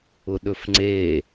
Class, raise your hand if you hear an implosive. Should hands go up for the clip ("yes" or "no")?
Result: yes